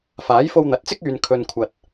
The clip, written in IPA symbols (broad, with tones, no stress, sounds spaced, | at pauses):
f aː˨˥ j f o˧ w n̪ ɐ˨˥ t̚ t͡s ɪ˥ k̚ yː˧ n kʰ ɵ˧ n kʷʰ ɐ˧ t̚